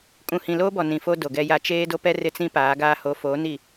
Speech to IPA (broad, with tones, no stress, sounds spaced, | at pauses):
kʼ ũ˨ h ĩ˨ l oː˦ b ɔ˨ n ĩ˨ f o˦ d o˨ ɡ ɛ˦ j a˦ t͡ʃ eː˦ d o˦ p ɛ˦ r ɪ˦ t͡s ĩ˦ p aː˨˦ ɡ aː˦ h o˨˦ f oː˨˦ n i˦˨